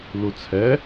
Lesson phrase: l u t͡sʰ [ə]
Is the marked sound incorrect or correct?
incorrect